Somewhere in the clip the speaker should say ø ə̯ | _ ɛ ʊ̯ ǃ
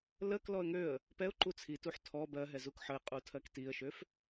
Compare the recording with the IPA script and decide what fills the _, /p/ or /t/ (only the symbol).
p